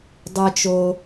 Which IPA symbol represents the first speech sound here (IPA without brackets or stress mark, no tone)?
dˤ